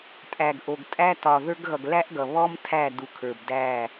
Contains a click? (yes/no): no